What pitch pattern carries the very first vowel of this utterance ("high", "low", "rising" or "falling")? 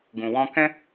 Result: low